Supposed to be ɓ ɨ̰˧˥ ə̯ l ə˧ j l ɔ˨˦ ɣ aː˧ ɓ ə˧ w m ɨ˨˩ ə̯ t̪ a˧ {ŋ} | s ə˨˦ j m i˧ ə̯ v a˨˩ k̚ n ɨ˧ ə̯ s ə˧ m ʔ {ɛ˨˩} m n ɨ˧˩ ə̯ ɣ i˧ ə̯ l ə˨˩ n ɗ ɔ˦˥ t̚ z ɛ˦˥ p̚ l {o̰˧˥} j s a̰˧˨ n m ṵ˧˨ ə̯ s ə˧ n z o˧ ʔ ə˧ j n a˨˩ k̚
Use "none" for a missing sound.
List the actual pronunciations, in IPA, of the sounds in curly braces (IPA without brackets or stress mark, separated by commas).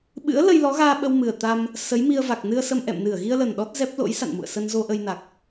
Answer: m, ɛ̰˧˨, o̰˧˥